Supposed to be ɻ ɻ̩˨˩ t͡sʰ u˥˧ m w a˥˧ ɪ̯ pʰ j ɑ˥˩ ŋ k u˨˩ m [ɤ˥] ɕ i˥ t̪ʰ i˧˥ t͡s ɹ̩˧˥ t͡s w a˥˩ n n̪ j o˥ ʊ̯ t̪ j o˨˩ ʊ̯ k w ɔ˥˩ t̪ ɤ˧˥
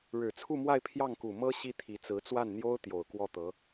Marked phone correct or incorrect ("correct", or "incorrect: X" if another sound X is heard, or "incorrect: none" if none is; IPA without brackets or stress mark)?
correct